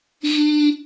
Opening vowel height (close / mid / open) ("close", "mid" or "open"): close